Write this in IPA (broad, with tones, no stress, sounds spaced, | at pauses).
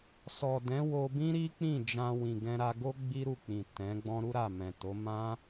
s ɔ˨ d ɛ̃˨˦ w o˧ b ĩ˦ ɾ i˦ k͡p ĩ˦˨ d͡ʒ ã˧ w ĩ˨ ɡ ɛ̃˧ ɾ a˧ ɡ o˦ ɡ͡b i˦ ɾ u˦˨ k͡p ĩ˨ t ɛ̃˨˦ ɡ͡b ɔ̃˦ ɾ u˦ ɾ a˦˨ m ɛ̃˨ t o˨˦ m ã˦